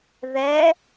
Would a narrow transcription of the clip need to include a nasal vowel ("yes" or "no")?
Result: no